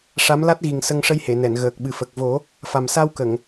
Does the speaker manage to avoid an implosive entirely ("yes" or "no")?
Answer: no